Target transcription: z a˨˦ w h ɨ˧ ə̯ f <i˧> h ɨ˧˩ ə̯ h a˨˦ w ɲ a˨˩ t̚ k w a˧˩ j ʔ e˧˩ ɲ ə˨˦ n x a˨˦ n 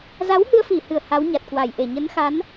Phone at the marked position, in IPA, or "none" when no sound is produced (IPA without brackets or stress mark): i˧˩